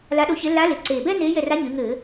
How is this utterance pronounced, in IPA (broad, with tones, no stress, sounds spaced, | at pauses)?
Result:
l a˧˥ ɗ o˧˥ ç e˧˥ l a˧˥ l e˩˧ ǀ eː˨˩ b ɛ˥ n eː˧˥ j ɛ˦˨ r a˧˥ ɲ ɨ˩˧ ŋ ɘ˧˩˧